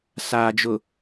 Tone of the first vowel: low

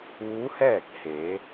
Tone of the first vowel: rising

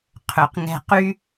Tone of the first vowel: low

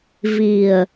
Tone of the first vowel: low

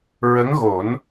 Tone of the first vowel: rising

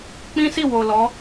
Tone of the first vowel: high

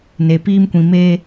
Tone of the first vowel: low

